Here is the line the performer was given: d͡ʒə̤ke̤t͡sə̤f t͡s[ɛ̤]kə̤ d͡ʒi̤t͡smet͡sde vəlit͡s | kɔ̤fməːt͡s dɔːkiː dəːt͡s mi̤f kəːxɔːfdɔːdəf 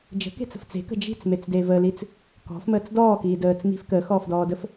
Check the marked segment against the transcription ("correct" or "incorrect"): incorrect